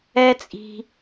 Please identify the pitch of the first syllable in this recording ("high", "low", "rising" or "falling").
high